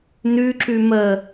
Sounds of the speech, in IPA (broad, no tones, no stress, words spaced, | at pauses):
nʉǁʉ mə